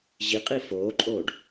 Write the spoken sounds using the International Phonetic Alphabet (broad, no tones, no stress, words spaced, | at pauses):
ʑiqʼi foːǃʼoːɖ